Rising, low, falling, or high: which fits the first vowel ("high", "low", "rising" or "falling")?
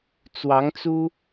rising